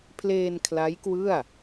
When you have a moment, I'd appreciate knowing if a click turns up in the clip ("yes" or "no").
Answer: no